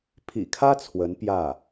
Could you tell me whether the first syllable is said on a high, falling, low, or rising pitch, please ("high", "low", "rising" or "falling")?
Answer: low